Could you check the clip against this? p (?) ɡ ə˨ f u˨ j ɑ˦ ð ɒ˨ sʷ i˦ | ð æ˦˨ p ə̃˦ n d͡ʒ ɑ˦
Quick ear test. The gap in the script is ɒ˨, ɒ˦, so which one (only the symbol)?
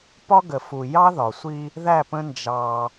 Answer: ɒ˦